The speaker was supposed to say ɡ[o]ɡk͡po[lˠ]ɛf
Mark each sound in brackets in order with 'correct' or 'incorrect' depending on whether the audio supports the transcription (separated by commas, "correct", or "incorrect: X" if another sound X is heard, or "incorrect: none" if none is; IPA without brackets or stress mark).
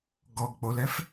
incorrect: ɔ, incorrect: l